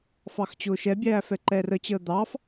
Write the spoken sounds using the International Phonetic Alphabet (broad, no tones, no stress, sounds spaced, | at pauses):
f ɑ x t͡ɕ ʊː ʃ ɛ bʲ æː f ɛ ǃ ɛː r ə t͡ɕ əː d̪ ɑ f